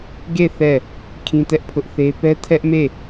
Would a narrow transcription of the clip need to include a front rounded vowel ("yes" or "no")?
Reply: no